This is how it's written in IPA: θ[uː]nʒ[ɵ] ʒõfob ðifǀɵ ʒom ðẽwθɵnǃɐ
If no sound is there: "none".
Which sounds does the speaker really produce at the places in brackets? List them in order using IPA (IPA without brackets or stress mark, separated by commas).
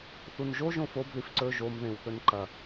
u, o